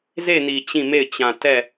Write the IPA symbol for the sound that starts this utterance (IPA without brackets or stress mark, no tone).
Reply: z